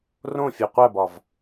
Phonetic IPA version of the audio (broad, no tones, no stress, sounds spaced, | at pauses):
r õ fʲ o qʷ æ b ɒ v